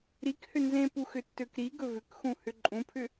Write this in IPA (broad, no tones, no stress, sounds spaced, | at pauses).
ɾ i k h ʏ n z ẽ p u x ʏ tː ø k ɾ i ɡ ɵ v ʏ k x ũ h ʏ ǃʼ ũ pʰ ʏ